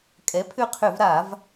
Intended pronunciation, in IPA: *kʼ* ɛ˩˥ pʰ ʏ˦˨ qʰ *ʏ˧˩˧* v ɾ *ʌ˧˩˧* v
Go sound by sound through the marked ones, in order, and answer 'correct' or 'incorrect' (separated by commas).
correct, correct, incorrect